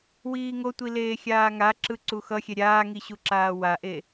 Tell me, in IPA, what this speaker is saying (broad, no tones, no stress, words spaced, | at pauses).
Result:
wiːŋotʷi leːxʲaːŋaǁɯ ǀuxʌxʲɛ ɾʲaːŋi ɕuǁaːwaʔe